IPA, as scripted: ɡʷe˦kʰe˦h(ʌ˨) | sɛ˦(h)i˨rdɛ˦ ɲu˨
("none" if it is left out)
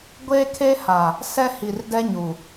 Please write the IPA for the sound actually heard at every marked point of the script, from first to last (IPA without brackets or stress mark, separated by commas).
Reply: a˨, h